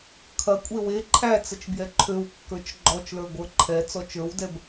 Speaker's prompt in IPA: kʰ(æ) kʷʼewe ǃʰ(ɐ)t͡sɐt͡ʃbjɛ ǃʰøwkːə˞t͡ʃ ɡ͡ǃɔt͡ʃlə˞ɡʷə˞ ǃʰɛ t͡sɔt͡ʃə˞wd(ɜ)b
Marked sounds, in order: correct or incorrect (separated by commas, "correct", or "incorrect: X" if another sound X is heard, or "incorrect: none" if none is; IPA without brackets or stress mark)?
incorrect: ɐ, incorrect: æ, incorrect: ɛ